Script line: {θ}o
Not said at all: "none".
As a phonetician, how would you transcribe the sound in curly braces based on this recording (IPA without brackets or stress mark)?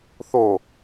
θ